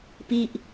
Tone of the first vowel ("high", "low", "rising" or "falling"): falling